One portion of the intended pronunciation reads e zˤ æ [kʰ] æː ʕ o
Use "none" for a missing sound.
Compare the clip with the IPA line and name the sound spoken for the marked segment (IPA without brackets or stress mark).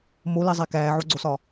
k